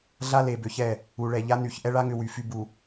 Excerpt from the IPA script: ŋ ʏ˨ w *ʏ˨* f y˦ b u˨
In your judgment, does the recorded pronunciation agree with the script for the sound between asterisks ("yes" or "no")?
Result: no